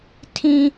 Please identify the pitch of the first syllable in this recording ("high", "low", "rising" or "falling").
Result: high